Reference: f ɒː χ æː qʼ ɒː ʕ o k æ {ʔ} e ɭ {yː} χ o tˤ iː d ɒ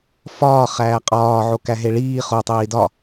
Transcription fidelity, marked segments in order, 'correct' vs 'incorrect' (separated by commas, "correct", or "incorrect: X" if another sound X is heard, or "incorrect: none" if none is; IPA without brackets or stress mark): incorrect: ɦ, incorrect: iː